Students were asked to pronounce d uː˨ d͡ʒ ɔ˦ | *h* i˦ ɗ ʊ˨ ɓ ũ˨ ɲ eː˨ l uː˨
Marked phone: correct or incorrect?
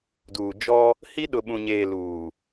correct